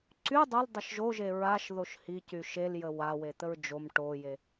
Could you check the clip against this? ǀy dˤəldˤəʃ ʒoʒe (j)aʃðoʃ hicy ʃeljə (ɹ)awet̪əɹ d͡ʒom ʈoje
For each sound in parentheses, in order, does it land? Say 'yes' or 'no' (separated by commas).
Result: no, no